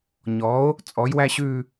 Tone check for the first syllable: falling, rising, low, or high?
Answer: rising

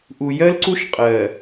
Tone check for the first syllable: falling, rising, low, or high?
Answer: low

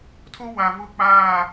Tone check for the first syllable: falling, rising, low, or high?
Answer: high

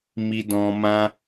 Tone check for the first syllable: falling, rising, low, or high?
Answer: low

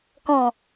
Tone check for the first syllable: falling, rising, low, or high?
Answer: low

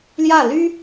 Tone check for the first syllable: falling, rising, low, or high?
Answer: falling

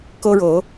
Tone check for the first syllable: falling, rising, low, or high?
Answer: high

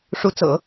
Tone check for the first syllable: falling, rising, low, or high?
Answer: rising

